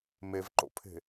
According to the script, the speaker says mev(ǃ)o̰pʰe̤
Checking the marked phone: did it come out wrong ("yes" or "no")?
no